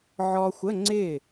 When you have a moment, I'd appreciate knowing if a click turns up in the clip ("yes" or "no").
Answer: yes